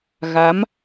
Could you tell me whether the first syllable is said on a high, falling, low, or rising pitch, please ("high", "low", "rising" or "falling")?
rising